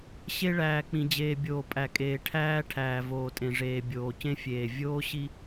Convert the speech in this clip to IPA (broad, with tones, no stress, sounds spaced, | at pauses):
ɕ e˦ ɭ æː˨ k͡p ĩ˨ d͡ʑ eː˨ bʲ oː˨ pʼ æ˨ kʼ eː˨ ʈʰ æː˦ ʈʰ æː˨ v oː˨ tʼ ẽ˨ ʐ eː˨ bʲ oː˨ c ẽ˦ fʲ eː˨ vʲ oː˦ ɕ i˦